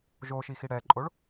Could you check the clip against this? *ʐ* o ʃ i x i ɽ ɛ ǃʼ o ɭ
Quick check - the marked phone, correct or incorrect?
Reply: incorrect